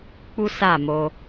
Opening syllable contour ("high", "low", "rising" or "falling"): high